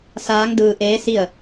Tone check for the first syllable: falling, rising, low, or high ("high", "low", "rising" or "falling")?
rising